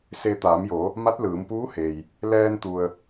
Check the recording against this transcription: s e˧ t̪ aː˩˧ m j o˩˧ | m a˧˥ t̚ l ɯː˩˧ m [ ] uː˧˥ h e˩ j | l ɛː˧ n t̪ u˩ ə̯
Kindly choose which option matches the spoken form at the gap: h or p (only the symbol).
p